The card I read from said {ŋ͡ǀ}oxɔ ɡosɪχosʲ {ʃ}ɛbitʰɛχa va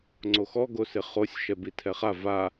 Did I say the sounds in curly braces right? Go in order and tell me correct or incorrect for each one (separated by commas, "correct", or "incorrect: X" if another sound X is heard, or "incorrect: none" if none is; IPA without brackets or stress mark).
correct, correct